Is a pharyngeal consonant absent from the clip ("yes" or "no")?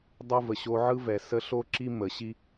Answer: no